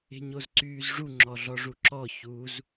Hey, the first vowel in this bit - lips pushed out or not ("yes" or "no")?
no